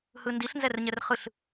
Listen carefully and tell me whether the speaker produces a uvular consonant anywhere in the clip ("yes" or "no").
yes